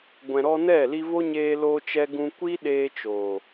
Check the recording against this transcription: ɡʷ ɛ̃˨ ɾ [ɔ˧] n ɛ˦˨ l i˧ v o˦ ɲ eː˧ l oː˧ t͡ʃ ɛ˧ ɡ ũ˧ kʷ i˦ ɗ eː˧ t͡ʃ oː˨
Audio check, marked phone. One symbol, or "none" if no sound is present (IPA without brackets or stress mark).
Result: ɔ˧